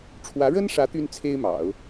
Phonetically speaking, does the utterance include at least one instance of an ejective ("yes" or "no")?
no